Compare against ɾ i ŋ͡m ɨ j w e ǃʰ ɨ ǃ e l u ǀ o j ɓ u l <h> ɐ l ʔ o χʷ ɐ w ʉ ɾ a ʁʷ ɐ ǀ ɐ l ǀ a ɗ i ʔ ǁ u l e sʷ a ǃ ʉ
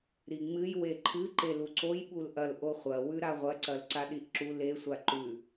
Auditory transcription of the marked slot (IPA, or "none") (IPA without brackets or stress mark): ʔ